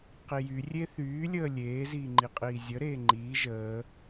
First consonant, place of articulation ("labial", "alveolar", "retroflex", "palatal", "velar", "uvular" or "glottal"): uvular